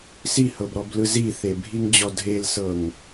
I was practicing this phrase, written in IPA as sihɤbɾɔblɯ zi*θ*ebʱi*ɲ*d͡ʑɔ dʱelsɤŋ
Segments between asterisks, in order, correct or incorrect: correct, incorrect: ŋ

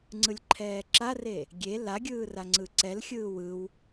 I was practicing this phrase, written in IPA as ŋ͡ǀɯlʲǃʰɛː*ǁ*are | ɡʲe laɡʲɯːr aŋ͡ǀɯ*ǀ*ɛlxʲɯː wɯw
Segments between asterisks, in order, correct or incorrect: correct, correct

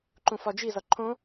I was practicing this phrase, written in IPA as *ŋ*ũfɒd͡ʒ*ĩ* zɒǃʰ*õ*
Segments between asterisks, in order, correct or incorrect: incorrect: ǃ, incorrect: i, correct

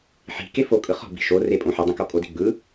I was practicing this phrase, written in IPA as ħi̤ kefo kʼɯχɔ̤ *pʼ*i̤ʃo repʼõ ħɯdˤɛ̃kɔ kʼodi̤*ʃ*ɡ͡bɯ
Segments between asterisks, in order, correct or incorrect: incorrect: b, incorrect: none

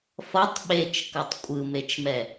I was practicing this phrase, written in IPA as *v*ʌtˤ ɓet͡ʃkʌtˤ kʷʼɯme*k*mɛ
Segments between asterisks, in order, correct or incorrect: incorrect: f, incorrect: t͡ʃ

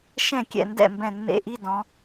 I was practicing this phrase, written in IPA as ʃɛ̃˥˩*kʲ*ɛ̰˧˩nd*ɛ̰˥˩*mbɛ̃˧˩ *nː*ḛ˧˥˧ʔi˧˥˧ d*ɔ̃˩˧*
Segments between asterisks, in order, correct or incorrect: correct, correct, correct, correct

